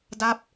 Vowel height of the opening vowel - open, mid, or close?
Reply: open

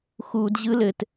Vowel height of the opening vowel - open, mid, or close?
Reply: close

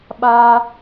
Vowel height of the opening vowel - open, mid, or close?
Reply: open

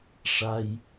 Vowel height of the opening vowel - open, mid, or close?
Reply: open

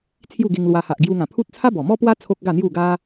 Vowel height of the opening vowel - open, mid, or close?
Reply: close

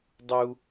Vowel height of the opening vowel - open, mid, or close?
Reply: close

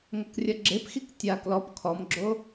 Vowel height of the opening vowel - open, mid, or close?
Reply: open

